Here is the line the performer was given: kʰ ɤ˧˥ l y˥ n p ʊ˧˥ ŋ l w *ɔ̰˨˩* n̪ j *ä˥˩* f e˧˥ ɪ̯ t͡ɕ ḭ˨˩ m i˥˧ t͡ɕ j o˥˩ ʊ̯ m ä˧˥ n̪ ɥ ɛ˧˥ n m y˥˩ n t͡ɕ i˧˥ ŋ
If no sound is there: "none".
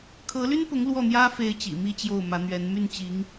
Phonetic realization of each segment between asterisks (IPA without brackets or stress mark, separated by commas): ɔ˥˩, ä˥